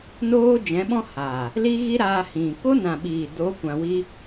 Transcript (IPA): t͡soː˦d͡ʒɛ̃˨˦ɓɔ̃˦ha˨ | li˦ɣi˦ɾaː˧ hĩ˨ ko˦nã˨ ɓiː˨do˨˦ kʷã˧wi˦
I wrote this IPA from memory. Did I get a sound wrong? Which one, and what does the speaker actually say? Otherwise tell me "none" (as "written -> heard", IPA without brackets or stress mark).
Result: t͡s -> n